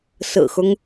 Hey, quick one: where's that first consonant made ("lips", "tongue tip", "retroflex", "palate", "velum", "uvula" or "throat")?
tongue tip